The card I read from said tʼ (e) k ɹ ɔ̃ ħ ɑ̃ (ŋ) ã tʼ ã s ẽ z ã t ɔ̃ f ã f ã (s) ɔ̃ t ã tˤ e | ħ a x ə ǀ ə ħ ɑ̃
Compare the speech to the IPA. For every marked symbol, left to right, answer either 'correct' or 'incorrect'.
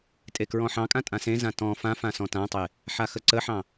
correct, incorrect: kʼ, correct

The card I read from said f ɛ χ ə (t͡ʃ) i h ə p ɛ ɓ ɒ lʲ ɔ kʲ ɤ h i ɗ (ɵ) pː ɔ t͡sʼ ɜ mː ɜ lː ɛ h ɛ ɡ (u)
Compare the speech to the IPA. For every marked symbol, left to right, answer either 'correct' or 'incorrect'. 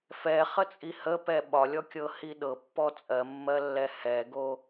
incorrect: t͡sʼ, incorrect: ɤ, incorrect: o

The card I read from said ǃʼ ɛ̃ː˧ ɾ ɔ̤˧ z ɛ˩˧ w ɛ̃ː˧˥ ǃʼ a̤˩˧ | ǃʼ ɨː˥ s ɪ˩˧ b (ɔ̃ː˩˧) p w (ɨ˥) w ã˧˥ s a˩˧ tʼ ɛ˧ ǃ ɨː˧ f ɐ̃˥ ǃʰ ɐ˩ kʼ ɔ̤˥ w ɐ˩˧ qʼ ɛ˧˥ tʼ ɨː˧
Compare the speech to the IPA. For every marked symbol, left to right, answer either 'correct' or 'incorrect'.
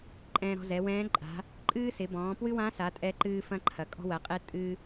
correct, correct

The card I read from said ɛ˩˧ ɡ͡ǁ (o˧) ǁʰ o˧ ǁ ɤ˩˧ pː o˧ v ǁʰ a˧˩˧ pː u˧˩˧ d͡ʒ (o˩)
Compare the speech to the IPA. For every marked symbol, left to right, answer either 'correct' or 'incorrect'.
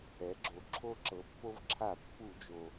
incorrect: o˩, correct

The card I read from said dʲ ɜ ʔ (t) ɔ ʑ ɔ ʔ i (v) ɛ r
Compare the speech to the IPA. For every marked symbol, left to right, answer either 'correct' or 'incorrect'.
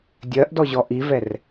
incorrect: d, correct

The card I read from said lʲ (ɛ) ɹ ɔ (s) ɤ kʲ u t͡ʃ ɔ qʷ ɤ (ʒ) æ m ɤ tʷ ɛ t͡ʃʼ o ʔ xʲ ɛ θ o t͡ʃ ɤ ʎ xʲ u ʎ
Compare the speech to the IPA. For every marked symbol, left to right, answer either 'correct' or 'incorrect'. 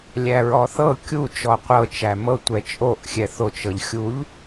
incorrect: æ, incorrect: θ, incorrect: t͡ʃ

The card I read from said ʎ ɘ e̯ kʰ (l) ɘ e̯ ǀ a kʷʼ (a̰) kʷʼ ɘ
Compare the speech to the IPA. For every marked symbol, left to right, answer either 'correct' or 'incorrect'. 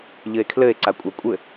correct, incorrect: a

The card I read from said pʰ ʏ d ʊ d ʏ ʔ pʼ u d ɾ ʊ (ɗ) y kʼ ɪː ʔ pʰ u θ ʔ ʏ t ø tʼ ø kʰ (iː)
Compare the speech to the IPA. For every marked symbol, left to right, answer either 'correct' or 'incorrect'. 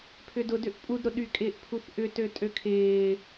correct, incorrect: ɪː

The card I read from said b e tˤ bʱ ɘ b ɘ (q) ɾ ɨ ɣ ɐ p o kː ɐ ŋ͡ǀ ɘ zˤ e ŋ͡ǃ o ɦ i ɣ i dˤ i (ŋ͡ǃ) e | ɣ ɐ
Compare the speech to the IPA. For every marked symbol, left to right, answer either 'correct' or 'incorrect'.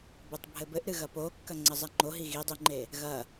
incorrect: ʔ, correct

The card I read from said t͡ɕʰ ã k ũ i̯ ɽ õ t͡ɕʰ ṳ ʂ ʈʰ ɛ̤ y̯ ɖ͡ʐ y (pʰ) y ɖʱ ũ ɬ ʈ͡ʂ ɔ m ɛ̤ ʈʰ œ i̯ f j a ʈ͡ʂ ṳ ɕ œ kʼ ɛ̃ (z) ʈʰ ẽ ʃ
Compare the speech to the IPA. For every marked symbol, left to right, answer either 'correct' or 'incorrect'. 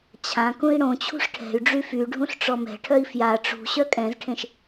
incorrect: f, correct

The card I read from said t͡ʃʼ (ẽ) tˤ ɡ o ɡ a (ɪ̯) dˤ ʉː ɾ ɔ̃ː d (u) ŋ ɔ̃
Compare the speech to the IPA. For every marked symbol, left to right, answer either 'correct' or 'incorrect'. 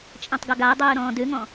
incorrect: ɛ̃, incorrect: ʊ̯, incorrect: ʉ

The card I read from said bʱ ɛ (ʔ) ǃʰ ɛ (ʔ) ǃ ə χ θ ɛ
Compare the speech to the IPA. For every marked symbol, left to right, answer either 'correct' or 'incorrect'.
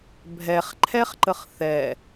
incorrect: χ, incorrect: χ

